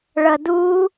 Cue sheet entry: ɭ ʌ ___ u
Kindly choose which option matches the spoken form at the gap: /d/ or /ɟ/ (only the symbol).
d